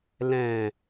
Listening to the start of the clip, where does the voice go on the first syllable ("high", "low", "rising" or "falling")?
low